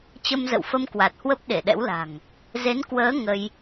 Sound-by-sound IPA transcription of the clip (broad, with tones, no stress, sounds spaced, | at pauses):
t͡ɕ ə˧ m z ə̰˧˨ w f ə˧ m k w a˨˩ t̚ h w ə˦˥ p̚ ɗ e˧˩ ɗ ɛ̰˧˥ w l a̤˨˩ ŋ | z e˨˦ n k w əː˨˦ ŋ ə˧ j